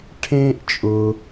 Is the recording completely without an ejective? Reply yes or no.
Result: no